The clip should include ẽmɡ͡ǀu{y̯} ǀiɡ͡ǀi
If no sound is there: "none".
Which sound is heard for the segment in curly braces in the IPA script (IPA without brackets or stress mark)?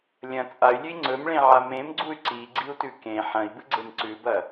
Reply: y̯